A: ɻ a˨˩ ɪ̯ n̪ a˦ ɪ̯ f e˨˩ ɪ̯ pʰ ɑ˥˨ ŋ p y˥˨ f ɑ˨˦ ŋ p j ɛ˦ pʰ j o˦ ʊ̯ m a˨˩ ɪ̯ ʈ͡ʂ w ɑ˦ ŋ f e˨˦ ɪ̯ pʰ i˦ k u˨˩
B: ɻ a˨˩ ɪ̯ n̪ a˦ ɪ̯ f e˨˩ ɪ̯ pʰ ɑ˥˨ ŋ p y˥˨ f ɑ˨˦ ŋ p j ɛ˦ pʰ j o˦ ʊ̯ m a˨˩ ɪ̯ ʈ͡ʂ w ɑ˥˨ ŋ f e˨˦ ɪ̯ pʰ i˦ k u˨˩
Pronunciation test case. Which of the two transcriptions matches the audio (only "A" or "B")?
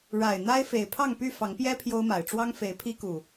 A